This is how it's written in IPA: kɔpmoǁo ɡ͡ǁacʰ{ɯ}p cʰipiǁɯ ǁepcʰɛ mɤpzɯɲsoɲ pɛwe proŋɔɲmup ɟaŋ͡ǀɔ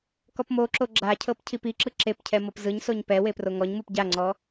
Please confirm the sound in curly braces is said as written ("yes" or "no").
no